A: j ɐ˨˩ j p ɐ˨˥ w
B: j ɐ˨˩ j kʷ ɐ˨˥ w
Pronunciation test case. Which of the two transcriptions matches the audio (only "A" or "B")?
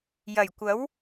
B